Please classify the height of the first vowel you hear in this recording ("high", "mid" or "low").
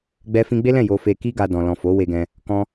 mid